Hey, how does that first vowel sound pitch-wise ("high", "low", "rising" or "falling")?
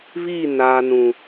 falling